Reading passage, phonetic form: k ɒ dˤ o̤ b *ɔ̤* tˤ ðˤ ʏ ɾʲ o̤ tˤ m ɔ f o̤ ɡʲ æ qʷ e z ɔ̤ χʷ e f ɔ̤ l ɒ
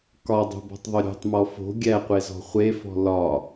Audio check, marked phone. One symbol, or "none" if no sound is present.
ɔ̤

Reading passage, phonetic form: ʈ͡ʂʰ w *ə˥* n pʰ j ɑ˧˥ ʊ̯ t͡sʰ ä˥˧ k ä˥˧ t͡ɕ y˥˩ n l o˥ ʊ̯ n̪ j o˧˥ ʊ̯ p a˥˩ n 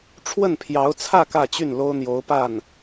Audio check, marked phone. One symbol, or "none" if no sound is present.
ə˥˩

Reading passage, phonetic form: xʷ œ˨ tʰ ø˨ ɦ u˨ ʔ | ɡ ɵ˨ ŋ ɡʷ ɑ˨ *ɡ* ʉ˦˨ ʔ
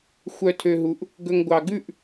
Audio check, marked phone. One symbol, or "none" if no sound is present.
ɡ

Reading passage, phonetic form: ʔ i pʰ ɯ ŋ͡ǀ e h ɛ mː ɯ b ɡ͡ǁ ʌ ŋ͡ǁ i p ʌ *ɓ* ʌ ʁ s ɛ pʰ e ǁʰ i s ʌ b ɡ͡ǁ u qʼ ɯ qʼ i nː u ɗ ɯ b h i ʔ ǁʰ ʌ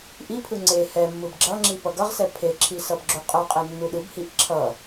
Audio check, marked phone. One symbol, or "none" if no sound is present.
ɡ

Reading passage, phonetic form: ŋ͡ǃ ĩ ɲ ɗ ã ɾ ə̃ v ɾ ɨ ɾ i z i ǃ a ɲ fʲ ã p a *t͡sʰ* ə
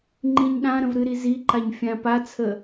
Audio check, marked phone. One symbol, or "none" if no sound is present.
t͡sʰ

